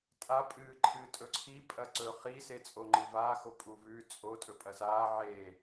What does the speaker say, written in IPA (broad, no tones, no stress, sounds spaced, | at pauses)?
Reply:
tʼ a pʼ ɨː ǃʰ ɨː tʼ ɵ ǀʰ i pʼ ɐ ǀ ɵ χ i s e t͡sʼ o ŋ͡ǃ ɨ v aː x o pʼ u v ʉ t͡sʼ o tʼ ɵ pʼ ɐ s aː ʕ eː